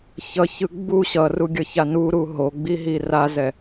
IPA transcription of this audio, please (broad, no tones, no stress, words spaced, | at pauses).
çʌçɯ ɡ͡bu ɕʌruɡʲʌça nuɾu ɦoɡ͡biɦi razɛ